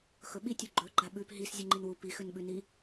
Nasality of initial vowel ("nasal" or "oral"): oral